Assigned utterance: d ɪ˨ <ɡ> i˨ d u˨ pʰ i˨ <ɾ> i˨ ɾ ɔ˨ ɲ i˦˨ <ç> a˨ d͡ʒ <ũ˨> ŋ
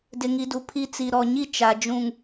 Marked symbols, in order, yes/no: no, no, no, yes

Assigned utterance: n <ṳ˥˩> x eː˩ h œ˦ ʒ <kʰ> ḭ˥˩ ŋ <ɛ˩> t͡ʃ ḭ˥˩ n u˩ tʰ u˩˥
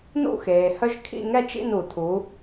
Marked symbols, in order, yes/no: no, yes, no

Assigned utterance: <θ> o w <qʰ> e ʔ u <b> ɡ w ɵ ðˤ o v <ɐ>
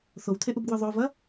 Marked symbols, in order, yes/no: yes, no, yes, yes

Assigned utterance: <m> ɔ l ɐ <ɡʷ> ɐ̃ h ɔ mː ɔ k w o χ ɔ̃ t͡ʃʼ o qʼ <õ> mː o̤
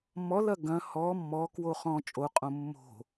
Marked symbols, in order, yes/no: yes, no, yes

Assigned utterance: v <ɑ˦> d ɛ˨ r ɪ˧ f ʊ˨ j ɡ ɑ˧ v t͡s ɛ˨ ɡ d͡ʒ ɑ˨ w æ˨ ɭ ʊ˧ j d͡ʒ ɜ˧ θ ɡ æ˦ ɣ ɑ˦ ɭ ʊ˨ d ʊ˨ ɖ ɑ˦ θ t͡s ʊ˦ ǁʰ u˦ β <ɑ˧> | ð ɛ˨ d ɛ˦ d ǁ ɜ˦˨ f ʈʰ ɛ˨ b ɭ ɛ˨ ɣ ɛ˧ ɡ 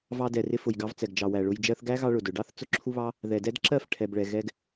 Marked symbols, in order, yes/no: no, no

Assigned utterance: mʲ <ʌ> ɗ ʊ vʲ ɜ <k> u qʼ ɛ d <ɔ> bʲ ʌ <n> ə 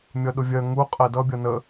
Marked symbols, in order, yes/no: yes, no, no, yes

